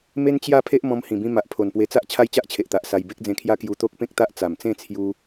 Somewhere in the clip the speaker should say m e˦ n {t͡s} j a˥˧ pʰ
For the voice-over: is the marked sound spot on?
no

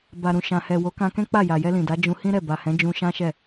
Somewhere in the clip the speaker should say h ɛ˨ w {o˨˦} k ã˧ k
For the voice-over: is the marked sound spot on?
yes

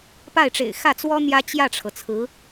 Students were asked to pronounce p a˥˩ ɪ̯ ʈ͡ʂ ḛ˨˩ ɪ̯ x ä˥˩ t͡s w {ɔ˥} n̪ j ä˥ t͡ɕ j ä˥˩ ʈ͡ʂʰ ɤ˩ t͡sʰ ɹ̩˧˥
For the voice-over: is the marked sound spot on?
yes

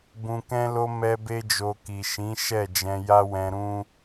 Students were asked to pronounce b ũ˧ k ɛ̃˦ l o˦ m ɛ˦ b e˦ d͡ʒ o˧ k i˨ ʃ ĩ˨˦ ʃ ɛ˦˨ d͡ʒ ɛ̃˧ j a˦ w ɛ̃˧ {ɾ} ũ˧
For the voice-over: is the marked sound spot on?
yes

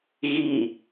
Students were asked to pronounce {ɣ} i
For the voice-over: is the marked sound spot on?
yes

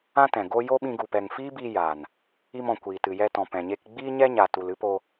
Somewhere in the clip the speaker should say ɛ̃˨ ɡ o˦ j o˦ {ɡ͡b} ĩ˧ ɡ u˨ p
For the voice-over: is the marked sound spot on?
no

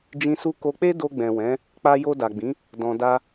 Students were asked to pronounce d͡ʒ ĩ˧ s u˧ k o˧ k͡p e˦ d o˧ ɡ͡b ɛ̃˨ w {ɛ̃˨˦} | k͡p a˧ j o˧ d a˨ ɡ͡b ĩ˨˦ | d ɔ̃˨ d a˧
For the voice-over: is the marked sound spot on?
yes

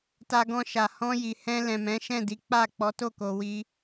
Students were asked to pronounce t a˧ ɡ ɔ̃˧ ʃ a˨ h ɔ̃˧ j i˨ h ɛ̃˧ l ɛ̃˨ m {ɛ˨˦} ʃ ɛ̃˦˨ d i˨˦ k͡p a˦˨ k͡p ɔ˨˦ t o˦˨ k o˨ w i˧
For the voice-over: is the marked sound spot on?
no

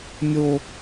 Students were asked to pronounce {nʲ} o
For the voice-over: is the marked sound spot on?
yes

